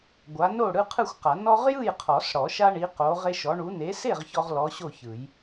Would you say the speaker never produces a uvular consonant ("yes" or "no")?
no